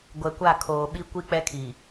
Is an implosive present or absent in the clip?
present